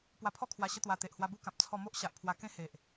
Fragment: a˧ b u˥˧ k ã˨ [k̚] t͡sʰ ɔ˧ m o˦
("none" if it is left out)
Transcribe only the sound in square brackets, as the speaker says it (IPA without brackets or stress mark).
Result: p̚